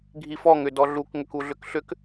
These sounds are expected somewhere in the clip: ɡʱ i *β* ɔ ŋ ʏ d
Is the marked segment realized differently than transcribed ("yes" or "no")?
yes